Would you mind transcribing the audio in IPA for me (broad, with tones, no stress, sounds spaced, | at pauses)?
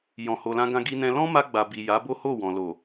j ɔ̃˨ h o˨ l ã˧ ɡ ã˧ ɡ i˧ n ɛ̃˧ l ɔ̃˦ m a˧ ɡ͡b a˨ b i˨ j a˨˦ b o˦ h o˦˨ w ɔ̃˨ l o˨